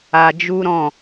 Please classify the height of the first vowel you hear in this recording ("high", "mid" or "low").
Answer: low